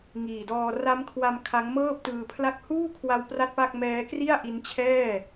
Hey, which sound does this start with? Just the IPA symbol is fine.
ŋ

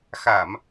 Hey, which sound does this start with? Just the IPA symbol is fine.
x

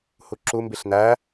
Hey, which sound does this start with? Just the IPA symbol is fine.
h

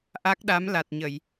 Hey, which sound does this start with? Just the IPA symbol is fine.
ʔ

